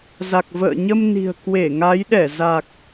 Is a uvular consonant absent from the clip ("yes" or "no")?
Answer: yes